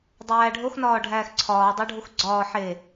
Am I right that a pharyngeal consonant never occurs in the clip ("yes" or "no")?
no